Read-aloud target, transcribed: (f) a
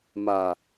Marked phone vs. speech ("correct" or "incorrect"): incorrect